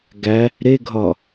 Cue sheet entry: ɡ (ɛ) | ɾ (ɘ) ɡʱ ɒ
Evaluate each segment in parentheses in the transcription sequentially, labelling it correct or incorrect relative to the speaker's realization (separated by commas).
incorrect, incorrect